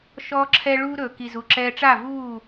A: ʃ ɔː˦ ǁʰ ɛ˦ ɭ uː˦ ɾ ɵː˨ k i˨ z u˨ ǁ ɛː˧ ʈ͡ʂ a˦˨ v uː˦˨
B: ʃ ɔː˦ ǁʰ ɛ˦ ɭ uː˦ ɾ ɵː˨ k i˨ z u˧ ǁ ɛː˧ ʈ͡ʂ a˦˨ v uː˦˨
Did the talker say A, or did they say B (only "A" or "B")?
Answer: A